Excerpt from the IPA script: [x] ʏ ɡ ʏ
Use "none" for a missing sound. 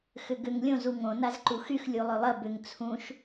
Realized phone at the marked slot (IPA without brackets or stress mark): x